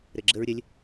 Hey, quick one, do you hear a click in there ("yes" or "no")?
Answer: yes